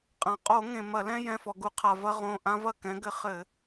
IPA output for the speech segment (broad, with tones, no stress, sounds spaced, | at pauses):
qʼ ã˩ qʼ o˧˩˧ ŋ ẽ˩ m ɐ˧˩˧ l ɛ̃˦ j ɛ̃˩˧˩ f ɔ˩ ɡ u˧˩˧ qʰ a˩ v ɐ˦ ʁ õ˩˧˩ ʔ ã˦ v ɐ˥˩ k ɛ̃˨˦ ɡ ɘ˨˦ χ ɘ˧˩˧